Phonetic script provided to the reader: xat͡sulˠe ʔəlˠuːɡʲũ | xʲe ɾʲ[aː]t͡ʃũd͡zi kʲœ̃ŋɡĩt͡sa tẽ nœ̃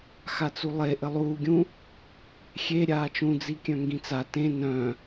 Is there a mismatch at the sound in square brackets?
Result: no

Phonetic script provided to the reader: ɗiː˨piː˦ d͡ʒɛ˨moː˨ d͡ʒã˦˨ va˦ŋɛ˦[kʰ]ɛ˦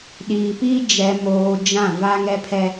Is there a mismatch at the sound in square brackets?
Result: yes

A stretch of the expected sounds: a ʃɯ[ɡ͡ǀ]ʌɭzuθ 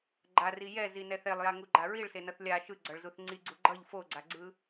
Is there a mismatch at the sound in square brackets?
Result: no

